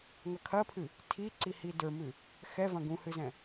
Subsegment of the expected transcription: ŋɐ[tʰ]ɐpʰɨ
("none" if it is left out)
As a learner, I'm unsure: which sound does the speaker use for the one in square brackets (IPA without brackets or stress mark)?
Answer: kʰ